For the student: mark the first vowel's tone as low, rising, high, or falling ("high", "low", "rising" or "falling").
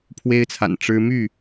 high